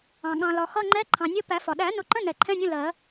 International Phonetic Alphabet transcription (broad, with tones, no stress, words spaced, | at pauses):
ɑ̃˩ ɠɑ̃˩lɒ˩xʌ˧˥˧ŋ͡ǃɛ˧˥˧ ǃʰɑ̃˩nʲə˧˥˧ pæ˨˩˦fɒ˩ ɗæ˨˩˦nʊ˨˩˦ǃə̃˧˥˧ nɛ˨˩˦ǃʰɛ̃˧˥˧nʲə̃˧˥˧ lɜ˨˩˦